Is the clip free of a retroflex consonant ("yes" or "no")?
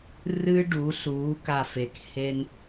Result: no